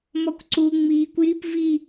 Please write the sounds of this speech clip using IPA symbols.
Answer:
m ɔ kʷ ǀ u ŋ͡m iː kʷ j i p v i

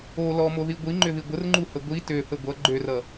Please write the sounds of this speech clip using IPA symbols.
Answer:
o l ɔ m o ð i ɡʷ i ŋ͡ǃ ʏ ð i ɡʷ ə r ŋ͡ǃ u h ə ɡʷ i t ø θ ə ɡʷ ʌ ɡ͡ǃ ø r ʌ

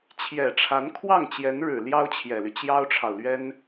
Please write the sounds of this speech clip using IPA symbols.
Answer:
t͡ɕʰ j ɛ˨˩ ʈ͡ʂʰ a˧˥ n kʰ w ɑ˥˩ ŋ t͡ɕ j ɛ˧˥ n ɻ ɻ̩˨˩ l j ɑ˥ ʊ̯ t͡ɕʰ j ɛ˨˩ l y˦ t͡ɕ j ɑ˥ ʊ̯ ʈ͡ʂʰ ɑ˨ ʊ̯ l ɥ ɛ˥ n

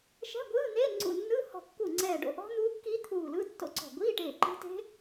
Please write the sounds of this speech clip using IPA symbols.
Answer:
ʃ ɛ̤˧˥˧ ɡʷ ɯː˧˥˧ n̪ eː˧˥˧ ŋ͡ǀ ṵ˧˩ nː ɯ˧˥˧ h ɔ̤˧˩ kː u˧˩ ŋ͡ǀ ɛː˧˩ ɖ o̰˧˩ ʔ ɔ̤˦˥ n̪ uː˦˥ kː iː˦˥ t̪ʰ uː˧˩ l ɯ˧˥˧ tː o̰˦˥ ǀ ɔ̤˧˩ ɡʷ iː˧˥˧ ʈ eː˧˩ ǃ e̤˦˥ t e̤˦˥

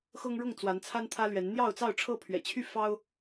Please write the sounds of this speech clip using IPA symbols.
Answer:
x ɤ˦ ŋ ɻ ʊ˥˨ ŋ t͡s w a˨˦ n t͡sʰ a˦ n t̪ʰ ä˦ l ɥ ɛ˨˦ n n̪ j ɑ˥˨ ʊ̯ t͡s ɑ˥˨ ʊ̯ ʈ͡ʂʰ ɤ˥˨ pʰ ɥ ɛ̰˨˩ t͡ɕʰ y˥˨ f ɑ˦ ʊ̯

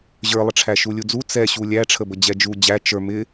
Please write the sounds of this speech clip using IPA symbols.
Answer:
ʑ ə˞ lˠ ə ʈ͡ʂʰ æ ʃ u lʲ u d͡z u t͡s ɛ ɕ u lʲ æ ʈ͡ʂʰ ə b ə d͡ʑ ɛ d͡ʒ u d͡ʑ æ t͡ʃ ə˞ m ɪ

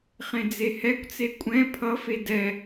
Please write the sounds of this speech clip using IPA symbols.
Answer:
χ ẽ d͡z e h ɛ kʷ t͡s e kʷʼ ɛ̃ pʰ ʌ f e d ɛ

